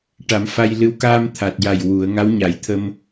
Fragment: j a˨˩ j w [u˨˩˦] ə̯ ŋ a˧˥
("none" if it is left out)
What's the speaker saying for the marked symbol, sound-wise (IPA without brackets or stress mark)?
u˨˩˦